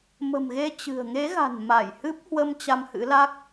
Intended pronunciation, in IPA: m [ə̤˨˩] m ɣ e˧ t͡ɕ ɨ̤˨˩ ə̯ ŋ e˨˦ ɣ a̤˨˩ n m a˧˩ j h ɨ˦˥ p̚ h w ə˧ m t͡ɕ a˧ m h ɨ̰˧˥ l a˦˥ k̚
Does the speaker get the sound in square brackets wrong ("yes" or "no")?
no